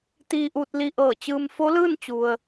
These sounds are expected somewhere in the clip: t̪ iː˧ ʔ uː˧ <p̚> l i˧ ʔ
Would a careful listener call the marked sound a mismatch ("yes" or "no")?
yes